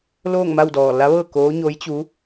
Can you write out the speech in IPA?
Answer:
l oː˥˨ ŋ m a˥˨ w d ɔː˧˩ l a˧˥ ʋ ɤː˥˨ k oː˧˥ ɲ o˧˥ j t͡ɕ u˧˥

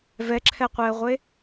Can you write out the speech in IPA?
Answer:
v ɛ ǁʰ ɛ qʷ e ə̯ ʁʷ e

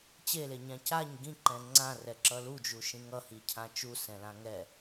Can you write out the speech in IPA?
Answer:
t͡ɕ e l e ɲ ã c a ɲ ɡ ĩ ǃ ɛ̃ ŋ͡ǀ ã r ɛ ǁ ʌ l u d͡ʒ u ʃ ĩ ŋ ʌ h i cʰ ã t͡ʃ u s ɛ̃ l ã ŋ ɛ

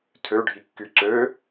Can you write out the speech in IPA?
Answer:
tʰ ø ɖʱ i kː y ǀ ø

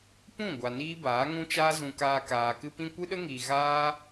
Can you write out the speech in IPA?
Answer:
p ũ˦˨ ɡʷ a˨ n iː˦ b aː˨˦ ŋ ũ˦ t͡ʃ aː˦ z ũ˧ k aː˧ k aː˨ k ɨ˦ p ĩ˦ kʷ ɨ˦ ɗ ə˦ ŋ iː˨ ɣ aː˦

